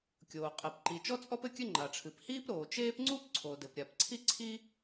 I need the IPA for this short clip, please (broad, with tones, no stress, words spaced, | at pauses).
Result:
kʲoː˩qʼɛ˩p ǃi˩ t͡ʃɔ˥t͡sʼɔ˥p ɘ˥kʲɘ˥ŋ͡ǃa˩ʈ͡ʂʰɨ˩p hiː˥pɾoː˩t͡ʃeː˥p ŋ͡ǀu˥pǀʰo˩dɘ˩p ɾʲa˩pǀʰi˥ǀʰi˥